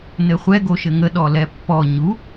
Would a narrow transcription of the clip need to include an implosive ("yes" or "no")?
yes